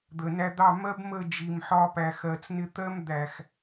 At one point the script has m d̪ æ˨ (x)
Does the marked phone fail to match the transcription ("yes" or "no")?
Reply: no